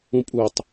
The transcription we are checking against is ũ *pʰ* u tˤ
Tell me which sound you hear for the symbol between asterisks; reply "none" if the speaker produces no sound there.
pʼ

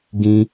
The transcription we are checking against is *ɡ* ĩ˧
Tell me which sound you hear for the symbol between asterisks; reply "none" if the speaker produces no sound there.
ɡ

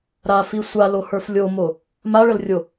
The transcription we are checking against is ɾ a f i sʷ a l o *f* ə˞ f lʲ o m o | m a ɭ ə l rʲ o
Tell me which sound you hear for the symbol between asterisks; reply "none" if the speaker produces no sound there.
h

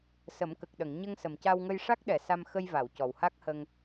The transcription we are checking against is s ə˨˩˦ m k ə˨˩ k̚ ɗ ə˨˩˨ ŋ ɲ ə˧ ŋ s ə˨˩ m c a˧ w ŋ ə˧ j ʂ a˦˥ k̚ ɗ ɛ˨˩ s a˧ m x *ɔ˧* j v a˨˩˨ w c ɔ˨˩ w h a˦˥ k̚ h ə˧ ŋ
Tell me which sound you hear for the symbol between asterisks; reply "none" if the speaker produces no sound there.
ə˧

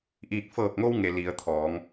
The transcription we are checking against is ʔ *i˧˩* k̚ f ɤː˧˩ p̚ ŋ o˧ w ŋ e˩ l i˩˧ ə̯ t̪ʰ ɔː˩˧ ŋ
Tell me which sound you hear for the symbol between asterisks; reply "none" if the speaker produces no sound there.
i˧˩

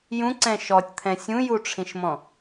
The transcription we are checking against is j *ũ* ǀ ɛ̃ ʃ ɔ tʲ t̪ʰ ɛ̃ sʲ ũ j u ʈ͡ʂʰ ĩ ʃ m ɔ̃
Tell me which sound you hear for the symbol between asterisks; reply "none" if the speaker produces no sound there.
ũ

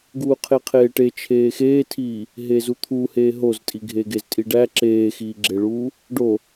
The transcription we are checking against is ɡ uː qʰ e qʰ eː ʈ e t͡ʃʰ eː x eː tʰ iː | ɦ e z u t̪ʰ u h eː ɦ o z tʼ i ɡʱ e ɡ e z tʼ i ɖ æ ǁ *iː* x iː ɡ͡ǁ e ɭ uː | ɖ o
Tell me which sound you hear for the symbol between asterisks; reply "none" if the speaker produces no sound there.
eː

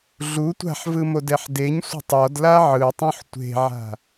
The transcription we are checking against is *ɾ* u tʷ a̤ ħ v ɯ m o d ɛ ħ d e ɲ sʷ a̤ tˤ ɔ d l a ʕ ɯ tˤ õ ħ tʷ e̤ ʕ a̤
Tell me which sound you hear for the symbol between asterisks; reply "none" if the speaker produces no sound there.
ɮ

